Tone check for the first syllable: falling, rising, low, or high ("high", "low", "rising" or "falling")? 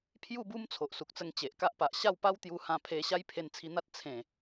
falling